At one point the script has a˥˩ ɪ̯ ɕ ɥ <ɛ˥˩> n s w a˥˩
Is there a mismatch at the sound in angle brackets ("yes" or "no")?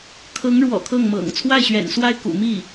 yes